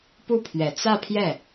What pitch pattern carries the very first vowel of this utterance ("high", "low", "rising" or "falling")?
falling